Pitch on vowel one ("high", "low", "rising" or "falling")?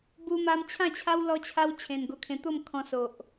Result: high